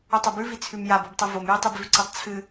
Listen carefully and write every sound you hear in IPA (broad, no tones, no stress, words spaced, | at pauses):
ɵtˤobʉvi t͡sʰʉmjabobtˤɨ vomjitˤibvʉ ǀitˤt͡sʰɨ